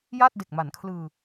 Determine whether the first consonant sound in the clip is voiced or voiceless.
voiced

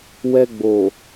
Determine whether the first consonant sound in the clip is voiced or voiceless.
voiced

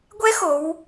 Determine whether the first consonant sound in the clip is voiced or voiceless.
voiced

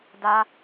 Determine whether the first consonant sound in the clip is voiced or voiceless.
voiced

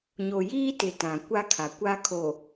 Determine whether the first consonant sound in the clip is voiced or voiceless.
voiced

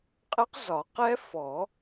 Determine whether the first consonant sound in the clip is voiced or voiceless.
voiceless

